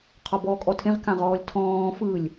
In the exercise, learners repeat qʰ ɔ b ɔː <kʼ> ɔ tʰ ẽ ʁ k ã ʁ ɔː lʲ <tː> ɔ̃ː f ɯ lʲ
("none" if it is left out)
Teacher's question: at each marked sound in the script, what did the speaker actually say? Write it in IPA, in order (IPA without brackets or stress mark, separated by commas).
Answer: kʼ, tʰ